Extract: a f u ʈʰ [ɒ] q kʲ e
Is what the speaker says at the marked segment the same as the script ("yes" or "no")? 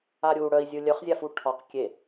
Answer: yes